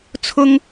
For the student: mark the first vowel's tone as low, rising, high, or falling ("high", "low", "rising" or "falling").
high